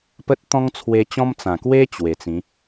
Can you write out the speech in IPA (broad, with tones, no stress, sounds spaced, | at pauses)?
p ə˦ t̚ t̪ ɔ̃˦ ŋ t͡sʰ w e˧ t͡ɕ ɔ̃˦ m t͡s ã˨˩ k w e˦ t͡ɕ w e˨˩ t͡s ĩ˨˦